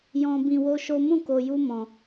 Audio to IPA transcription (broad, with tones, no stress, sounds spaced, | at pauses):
j ɔ̃˧ b ĩ˧ w o˦ ʃ o˦ m ũ˦˨ k o˨ j u˧ m ɔ̃˨